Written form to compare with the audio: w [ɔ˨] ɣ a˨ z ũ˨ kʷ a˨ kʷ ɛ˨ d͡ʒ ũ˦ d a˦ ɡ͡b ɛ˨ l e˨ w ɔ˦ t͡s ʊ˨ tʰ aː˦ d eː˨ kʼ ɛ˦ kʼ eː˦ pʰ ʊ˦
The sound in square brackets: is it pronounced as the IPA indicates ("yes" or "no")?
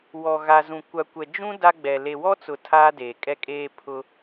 yes